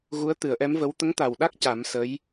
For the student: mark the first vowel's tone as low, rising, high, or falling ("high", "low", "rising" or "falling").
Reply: rising